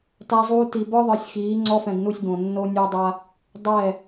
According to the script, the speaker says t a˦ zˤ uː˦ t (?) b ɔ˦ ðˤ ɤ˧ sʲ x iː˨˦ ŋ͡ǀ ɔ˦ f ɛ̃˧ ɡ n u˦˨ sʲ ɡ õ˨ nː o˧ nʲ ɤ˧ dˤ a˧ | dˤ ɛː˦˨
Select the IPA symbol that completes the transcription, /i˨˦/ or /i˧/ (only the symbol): i˧